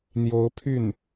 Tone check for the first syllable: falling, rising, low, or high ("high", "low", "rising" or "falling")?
rising